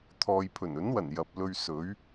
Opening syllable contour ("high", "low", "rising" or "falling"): low